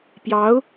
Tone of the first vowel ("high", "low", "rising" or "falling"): rising